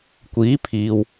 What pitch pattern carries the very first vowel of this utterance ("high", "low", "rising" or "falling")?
rising